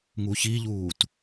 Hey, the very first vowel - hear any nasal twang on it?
no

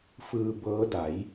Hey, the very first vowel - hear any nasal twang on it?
no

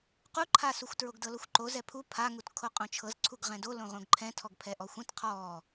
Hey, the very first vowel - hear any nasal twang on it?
no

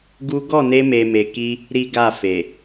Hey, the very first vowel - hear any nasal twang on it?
no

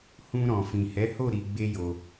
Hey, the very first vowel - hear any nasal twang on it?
yes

